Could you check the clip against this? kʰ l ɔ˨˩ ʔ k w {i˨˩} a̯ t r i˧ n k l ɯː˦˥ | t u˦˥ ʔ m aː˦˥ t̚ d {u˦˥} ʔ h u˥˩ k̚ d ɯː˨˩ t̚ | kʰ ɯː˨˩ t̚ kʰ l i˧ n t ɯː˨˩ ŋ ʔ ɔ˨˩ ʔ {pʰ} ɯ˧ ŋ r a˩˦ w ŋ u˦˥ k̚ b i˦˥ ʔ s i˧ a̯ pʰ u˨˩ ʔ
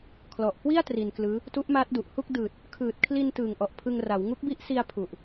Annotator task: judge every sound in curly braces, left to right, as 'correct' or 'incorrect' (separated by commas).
incorrect, incorrect, correct